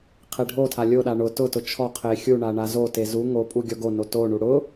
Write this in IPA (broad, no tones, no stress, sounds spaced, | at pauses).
qʰ e ɖʱ o tʰ a lʲ o ɗ a ɳ ʊ t ʊ t ʊ t͡ʃʰ ɔ qʰ e xʲ u ɳ a ɳ a z o t e z u ŋ o pʼ u ɡʲ ɔ ɡ o n o t o ɳ u ɽ ʊ